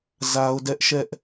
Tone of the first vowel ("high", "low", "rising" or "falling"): high